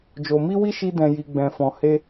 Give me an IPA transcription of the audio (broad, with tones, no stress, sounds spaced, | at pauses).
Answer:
d͡ʒ o˧ m i˦ w i˦ ʃ i˦ d ɛ̃˧ j i˧ ɡ͡b ɛ̃˧ f ɔ̃˧ h e˦